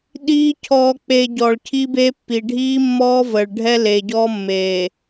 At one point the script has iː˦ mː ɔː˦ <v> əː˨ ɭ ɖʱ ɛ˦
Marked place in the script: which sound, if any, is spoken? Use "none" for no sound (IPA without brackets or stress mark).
v